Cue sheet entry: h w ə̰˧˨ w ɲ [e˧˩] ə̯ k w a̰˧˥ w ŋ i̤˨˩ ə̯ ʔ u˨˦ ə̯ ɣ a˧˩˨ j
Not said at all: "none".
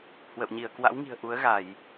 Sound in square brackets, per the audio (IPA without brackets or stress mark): i˧˩